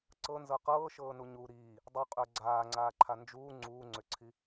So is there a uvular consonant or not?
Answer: yes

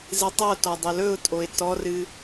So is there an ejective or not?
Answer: yes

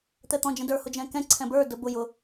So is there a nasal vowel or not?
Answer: yes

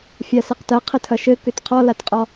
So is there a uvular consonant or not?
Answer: yes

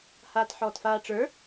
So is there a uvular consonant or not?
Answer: no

